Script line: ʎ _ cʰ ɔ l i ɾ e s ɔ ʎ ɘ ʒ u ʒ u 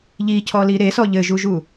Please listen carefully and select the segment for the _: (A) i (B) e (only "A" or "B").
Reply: A